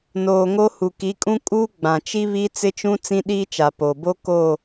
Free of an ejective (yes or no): no